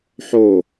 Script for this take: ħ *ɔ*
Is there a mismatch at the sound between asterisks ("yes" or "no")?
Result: yes